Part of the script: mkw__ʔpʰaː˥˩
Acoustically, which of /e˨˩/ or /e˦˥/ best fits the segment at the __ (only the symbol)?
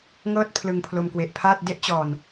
e˨˩